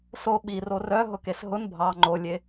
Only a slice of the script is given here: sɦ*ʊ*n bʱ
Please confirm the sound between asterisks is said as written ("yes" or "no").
yes